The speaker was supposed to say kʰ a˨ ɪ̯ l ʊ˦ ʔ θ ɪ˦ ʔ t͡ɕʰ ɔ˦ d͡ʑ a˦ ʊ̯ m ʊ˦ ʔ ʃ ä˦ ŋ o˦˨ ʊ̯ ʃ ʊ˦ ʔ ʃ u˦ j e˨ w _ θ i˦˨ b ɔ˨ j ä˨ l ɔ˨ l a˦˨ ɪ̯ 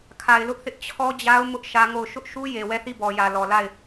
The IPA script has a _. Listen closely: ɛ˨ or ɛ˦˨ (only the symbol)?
ɛ˦˨